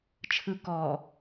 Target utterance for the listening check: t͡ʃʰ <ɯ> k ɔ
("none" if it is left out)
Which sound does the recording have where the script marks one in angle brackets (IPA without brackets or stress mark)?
ɯ